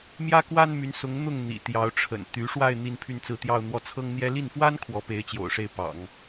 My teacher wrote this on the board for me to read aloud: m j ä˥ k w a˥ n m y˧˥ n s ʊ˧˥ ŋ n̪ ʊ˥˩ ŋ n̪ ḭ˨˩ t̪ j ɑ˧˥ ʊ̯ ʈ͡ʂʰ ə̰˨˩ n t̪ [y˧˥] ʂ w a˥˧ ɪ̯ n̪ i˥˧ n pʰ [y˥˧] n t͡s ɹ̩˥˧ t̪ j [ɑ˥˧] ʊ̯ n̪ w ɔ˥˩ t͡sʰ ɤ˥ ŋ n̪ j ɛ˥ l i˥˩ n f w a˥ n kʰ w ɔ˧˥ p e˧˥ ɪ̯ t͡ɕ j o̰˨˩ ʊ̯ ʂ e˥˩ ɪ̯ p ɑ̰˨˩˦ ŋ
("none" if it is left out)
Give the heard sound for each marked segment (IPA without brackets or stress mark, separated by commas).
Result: y˧˥, y˥˧, ɑ˥˧